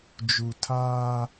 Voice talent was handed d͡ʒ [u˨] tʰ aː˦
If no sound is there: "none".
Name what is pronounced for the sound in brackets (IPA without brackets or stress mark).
u˨